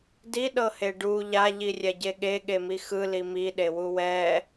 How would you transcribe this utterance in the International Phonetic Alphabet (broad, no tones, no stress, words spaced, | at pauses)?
diɗɤhe ɖu ʎaʎirʲɛɟe ɠeɠemi xɯli miɗewu wɛ